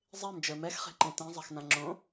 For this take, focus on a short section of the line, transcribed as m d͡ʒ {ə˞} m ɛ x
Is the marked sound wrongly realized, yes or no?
no